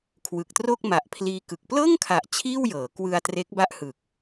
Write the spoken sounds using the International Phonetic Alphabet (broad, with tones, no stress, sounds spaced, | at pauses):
kʰ w ɯ˨˩ k̚ t r o˥˩ k̚ m a˨˩ ʔ pʰ l iː˧ k ɯ˨˩ k̚ p l ɤː˥˩ ŋ kʰ a˨˩ ʔ t͡ɕʰ iː˥˩ w j ɤː˩˦ k w ɯ˧ a̯ t r e˦˥ k̚ b a˥˩ ʔ h ɯ˨˩ k̚